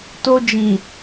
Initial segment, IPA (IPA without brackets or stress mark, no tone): t